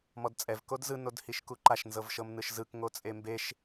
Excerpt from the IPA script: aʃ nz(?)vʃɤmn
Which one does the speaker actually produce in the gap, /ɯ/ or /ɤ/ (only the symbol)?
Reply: ɤ